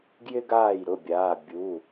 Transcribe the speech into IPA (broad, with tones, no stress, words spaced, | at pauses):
ɡjɪ˥ɡaː˥˩jɾʊ˩˧˩bʲaː˩˧˩ bʲu˩˧˩